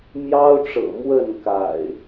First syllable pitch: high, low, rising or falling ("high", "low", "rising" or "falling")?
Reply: high